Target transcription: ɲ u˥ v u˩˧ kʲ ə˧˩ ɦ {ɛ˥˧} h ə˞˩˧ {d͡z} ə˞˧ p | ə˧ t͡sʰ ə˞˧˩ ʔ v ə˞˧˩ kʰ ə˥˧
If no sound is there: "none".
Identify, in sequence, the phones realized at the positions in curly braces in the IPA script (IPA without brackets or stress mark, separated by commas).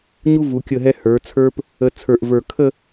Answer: ɛ˧, t͡sʰ